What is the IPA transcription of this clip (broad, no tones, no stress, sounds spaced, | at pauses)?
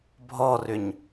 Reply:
bʱ ɔ r ʏ ɲ